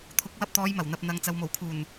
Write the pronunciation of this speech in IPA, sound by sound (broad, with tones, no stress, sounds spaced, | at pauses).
t̪ʰ ʊ˨˥ k̚ w ɐ˧ p̚ t̪ ɔː˨˧ j m ɐ˨˩ w n̪ ɐ˨ p̚ n̪ ɐ˨ ŋ t͡s ɐ˨ w m o˨˩ w kʰ uː˨˩ n